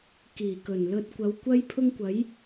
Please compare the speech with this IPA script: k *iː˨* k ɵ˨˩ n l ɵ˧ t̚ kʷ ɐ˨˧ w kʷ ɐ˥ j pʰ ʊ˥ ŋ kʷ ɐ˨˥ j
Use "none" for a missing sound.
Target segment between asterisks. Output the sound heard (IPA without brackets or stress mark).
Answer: iː˨˩